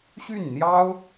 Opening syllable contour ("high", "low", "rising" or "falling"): falling